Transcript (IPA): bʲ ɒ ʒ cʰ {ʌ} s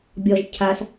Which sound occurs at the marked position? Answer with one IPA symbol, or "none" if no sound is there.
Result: a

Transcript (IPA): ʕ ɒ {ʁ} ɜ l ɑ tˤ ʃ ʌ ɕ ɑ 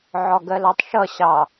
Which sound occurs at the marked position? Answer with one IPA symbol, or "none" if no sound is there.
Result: ɡ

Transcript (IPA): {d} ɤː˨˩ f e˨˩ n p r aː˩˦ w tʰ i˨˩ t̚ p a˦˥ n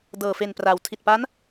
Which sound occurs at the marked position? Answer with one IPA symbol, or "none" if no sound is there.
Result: d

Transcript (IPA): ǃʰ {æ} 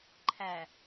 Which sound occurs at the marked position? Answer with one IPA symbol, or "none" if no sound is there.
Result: æ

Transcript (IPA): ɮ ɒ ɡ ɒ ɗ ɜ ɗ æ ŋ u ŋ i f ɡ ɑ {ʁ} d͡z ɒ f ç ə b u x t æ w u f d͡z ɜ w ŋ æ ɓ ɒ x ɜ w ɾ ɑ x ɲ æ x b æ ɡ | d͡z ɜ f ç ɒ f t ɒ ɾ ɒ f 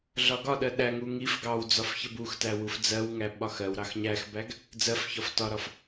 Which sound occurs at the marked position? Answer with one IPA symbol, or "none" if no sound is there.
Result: w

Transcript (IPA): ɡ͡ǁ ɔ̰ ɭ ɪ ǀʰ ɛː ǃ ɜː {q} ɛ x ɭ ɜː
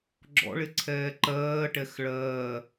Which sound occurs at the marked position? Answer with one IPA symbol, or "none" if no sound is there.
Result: ʈ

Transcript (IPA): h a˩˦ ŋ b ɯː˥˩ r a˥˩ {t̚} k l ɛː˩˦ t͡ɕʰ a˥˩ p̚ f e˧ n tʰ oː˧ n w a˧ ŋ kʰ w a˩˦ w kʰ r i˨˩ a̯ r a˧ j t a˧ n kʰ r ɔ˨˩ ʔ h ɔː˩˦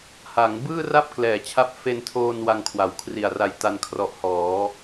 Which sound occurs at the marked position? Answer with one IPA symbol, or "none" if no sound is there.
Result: p̚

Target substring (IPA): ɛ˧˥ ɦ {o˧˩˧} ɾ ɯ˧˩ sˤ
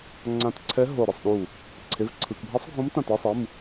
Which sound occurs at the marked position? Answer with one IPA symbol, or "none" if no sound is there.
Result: o˧˩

